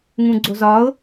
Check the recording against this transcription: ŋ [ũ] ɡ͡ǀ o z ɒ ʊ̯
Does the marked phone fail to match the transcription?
no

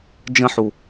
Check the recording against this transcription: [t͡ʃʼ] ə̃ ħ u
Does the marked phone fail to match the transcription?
yes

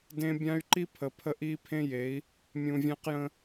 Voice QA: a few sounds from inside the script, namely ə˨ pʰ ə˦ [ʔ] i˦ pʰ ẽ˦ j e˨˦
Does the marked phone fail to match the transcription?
no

